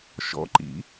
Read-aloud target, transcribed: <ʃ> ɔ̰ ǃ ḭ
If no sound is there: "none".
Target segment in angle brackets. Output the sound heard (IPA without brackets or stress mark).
ʃ